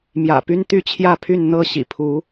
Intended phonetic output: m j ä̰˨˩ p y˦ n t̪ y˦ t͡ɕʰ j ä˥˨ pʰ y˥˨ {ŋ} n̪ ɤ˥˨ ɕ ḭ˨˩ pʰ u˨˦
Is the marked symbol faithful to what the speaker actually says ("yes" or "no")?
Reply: no